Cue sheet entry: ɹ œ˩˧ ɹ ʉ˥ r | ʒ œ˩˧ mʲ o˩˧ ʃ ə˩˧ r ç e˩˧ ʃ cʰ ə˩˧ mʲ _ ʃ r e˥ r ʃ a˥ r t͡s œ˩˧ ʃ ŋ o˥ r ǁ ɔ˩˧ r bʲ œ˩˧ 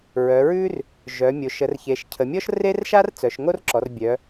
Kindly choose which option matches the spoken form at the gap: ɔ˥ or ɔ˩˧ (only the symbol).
ɔ˥